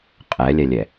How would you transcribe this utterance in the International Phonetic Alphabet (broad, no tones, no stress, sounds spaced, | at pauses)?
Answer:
qʼ ɛ lʲ ɛ lʲ ɛ